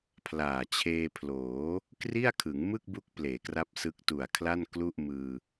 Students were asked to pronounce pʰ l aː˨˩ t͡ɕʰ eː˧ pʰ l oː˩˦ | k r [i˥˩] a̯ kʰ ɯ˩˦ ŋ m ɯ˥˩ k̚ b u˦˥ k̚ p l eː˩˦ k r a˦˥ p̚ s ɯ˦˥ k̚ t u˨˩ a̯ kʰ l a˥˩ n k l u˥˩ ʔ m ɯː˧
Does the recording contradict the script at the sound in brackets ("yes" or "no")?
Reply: no